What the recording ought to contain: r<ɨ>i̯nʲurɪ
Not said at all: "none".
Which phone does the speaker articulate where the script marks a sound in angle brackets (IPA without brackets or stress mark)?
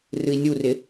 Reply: ɨ